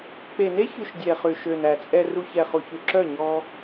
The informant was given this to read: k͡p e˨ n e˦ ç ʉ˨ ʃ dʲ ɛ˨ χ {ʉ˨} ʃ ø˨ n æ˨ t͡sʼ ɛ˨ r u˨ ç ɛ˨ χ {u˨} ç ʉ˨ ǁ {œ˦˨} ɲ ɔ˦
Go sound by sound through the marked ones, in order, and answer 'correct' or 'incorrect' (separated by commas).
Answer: correct, correct, correct